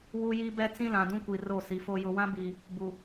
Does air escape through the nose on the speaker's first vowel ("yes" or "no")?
no